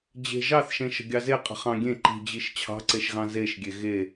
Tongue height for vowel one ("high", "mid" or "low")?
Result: mid